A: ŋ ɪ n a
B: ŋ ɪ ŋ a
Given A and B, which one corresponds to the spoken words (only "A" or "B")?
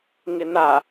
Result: A